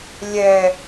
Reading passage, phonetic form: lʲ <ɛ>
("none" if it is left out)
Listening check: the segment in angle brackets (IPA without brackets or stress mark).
ɛ